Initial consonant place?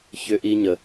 palatal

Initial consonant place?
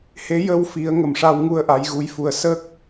glottal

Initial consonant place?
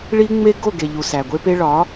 retroflex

